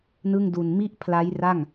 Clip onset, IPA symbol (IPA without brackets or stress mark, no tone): n